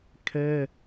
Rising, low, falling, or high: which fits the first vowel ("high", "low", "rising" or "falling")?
high